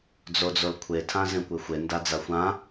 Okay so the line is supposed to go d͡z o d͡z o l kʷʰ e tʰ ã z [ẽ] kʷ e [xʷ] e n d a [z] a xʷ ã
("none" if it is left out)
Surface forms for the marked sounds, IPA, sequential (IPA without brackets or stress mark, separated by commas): ẽ, xʷ, d͡z